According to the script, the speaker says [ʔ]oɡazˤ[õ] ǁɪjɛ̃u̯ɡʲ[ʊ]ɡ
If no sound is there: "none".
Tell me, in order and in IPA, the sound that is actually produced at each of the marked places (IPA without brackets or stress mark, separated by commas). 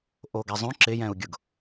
ʔ, õ, ʊ